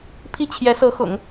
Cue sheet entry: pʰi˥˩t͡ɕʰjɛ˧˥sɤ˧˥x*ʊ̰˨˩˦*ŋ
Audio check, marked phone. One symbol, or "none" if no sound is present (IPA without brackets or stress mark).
ʊ̰˨˩˦